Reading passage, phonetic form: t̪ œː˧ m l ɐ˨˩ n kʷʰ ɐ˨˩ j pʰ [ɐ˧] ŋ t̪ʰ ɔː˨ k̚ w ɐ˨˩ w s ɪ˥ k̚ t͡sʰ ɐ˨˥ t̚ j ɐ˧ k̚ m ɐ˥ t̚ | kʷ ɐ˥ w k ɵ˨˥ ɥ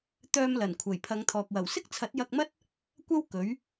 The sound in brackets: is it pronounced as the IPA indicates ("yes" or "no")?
no